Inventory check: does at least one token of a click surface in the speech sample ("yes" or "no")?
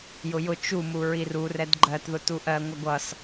yes